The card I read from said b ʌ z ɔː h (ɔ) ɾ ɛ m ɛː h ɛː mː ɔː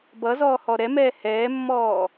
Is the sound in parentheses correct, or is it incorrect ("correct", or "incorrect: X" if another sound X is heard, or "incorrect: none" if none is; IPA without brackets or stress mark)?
correct